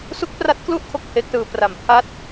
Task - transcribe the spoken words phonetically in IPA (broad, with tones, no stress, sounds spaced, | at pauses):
s u˦˥ k̚ p r a˦˥ t̚ k l u˥˩ ʔ kʰ o˥˩ k̚ h e˦˥ k̚ s ɯː˧ p r a˩˦ m pʰ a˦˥ t̚